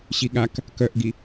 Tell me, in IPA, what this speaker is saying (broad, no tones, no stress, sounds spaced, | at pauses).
ɕ i ɠ a k | k œ ʔ ɡ i